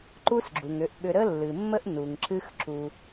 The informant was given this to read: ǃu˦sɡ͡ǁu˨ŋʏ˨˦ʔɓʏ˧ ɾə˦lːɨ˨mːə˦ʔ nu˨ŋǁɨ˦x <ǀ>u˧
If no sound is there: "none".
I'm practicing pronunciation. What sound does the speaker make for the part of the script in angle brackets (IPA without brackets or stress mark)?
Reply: ǁ